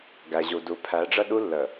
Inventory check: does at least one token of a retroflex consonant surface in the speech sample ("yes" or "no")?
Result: yes